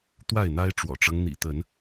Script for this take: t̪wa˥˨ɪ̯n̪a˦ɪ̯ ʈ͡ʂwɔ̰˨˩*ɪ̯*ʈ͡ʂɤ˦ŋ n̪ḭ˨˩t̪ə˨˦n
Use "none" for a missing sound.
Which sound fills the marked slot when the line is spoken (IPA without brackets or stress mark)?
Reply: none